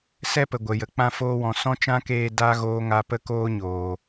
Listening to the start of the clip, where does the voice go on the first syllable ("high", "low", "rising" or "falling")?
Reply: high